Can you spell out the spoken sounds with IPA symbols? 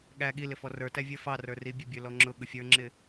ɠ æ ɠ i l ɪ f ɔ r ə˞ t æ vʲ ə˞ f ɑ r ə˞ r i bʲ ə bʲ ə˞ l ɔ ŋ͡ǁ ʊ ɠ ʊ fʲ ə˞ ŋ͡ǁ ɪ

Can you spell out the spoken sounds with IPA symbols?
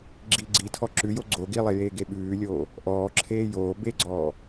ɡ͡ǁ i ɡ͡ǀ i tʰ ɔ ǁ ʉ j o ɡ͡ǀ o ɡ i lˠ e j eː ɡ e ɓ ʉː lʲ oː | ʔ ɔː ǁʰ eː j oː b e ɡ͡ǀ ɔː

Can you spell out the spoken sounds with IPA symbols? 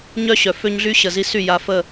ɲ œ˦ ɕ œ˨ f ø˦ ɲ ɮ y˦ ɕ ə˨ z i˦ s y˦˨ j a˦ f ə˦˨

